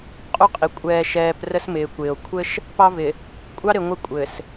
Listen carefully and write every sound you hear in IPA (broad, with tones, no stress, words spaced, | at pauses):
qʼu˦qʼi˨ kʷʼɛː˨ ʃɛː˨p rə˦smɪː˨kʷɪː˨o̯ kʷʰɘ˦ʃ | pɑ˦vɪ˨ | kʷʼɑ˦ɾɪ˨ ŋʷɪ˦kʷʼɘ˨s